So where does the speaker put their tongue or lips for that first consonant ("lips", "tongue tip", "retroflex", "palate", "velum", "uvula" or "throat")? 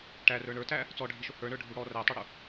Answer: retroflex